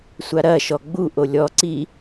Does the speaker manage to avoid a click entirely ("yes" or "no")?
no